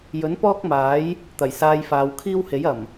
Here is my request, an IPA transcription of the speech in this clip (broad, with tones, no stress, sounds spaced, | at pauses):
j ɵ˨˥ n p ɔː˥ k̚ m aː˨˥ j | t̪ ɐ˨˩ j s aː˧ j f aː˨˧ w kʰ iː˥ w h e˨˥ j ɐ˨˩ m